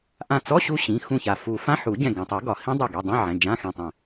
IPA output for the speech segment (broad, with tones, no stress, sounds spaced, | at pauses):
ʔ ã˧˩ t͡s ɔ˧˥˧ ɕ u˦˥ ɕ ĩ˩˧˩ x ũ˧˩ ç a˩ f u˨˩˦ f ã˧˥˧ ħ u˨˩˦ ɟ ɛ̃˧˩ ɡ ɛ̃˩ tˤ ɘ˨˩˦ ɡ ɒ˩ h ĩ˦˥ dˤ ɨ˧˩ ɡ i˩˧˩ dˤ ɛ̃˧˥˧ ʕ ɛ̃˩˧˩ d͡ʒ ã˧˥˧ x ɛ̃˧˩ tˤ ɛ̃˧˩